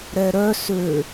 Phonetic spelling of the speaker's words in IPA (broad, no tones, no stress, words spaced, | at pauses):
ɾɛɾœ sø